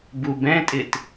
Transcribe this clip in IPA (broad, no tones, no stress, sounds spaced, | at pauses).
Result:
b u b ɛ̃ tʼ ɪ t